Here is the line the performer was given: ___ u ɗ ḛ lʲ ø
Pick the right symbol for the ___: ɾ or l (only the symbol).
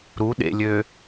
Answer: ɾ